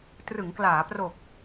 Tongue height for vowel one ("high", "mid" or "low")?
high